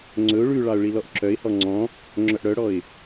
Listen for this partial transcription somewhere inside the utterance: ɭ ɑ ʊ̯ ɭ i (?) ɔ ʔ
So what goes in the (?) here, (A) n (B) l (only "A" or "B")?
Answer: B